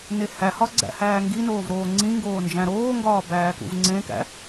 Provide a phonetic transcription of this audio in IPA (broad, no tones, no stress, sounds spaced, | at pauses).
n e h æ h ɒ ɡ͡ǀ æ̰ h æː ŋ ɡ i n oː v ɾ oː ŋ͡ǀ ĩ ŋ ɡ oː n d͡ʒ æ̃ ɾ oː ŋ ɡ ɒː b æː k ṵ v ŋ͡ǀ ẽ k æ̰